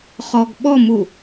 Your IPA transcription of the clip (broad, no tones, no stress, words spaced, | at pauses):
χɔɡɓɔmu